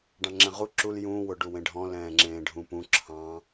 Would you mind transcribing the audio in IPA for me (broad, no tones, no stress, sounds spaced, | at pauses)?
ɖ ɑ̃ ŋ͡ǁ ɛ̃ ʁ u ǁ u l j ũː w ʊ ɖ u w ẽ ɖʱ ɔ̃ l ɛ̃ː ŋ͡ǁ ẽː ɖʱ ũ p ũ ǁʰ ɑ̃